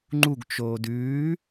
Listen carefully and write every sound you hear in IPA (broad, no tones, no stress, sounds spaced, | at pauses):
ŋ͡ǃ u ɡ t͡ʃ oː d ʉː